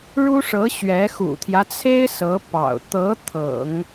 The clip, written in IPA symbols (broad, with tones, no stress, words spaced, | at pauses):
ɻu˥ʂɤ˧˥ ɕɥɛ˧˥ xṵ˨˩t̪ʰjä˦t͡sʰe˥ɪ̯ sɤ˧˥pɑ̰˨˩ʊ̯ t̪ɤ˧˥ t̪ʰɤ̰˨˩˦ŋ